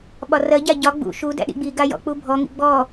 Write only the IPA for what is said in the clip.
ɓ ɒ r ɜ ɟ a ɟ ɒ ɡ͡b ṵ ʃ u d æ̰ ɗ ḭ ɡ͡b i ɡ a j ɔ̰ k͡p u bʱ ɔ ŋ ḭ ɡ͡b ɔ

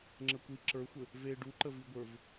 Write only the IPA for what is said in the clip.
ŋ͡ǁ ə kʷ i ǁ ə˞ xʷ ɘ | v e ɖ u ǃ ə v i ɡʷ ə˞ v

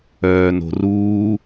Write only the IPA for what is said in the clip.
œː n o̤ r uː

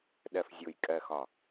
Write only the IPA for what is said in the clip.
ɗ ɜ˨ f zʲ ʊː˨ j kʼ ɜ˨ x ɒ˨

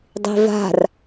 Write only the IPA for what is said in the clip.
dˤ i̤ v a̤ r

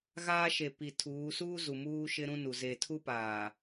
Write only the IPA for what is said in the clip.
ɣ aː˦ ʃ e˨ p i˨ tʰ uː˨˦ s uː˦ z u˨ m uː˦ ʃ ɪ˦ ɾ ũ˦ n u˨ z e˨ tʰ u˦ p aː˨

